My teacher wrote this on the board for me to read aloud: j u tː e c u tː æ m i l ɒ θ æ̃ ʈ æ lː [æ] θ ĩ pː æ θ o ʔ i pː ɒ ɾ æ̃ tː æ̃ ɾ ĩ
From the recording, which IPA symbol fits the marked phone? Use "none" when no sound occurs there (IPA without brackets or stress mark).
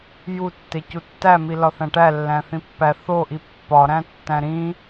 æ̃